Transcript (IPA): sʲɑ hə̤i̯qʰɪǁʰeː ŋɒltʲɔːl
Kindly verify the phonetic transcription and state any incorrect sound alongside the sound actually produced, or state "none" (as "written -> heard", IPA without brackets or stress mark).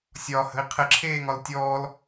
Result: ɑ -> ɒ